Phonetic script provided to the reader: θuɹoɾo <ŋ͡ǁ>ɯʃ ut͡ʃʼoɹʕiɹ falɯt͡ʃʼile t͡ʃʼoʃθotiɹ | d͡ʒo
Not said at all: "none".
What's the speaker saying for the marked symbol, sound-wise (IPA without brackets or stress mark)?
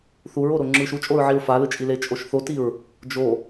ŋ͡ǁ